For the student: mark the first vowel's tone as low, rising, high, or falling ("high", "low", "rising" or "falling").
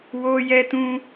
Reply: high